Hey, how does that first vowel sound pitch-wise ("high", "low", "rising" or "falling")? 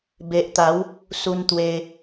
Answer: low